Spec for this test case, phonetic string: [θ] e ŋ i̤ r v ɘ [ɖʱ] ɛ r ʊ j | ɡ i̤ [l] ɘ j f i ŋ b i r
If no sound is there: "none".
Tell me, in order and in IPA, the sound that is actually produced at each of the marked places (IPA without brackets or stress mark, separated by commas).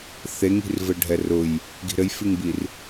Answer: θ, ɖʱ, ɾ